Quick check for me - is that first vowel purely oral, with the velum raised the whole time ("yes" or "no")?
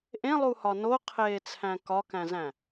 no